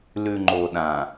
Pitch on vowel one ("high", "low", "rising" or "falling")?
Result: low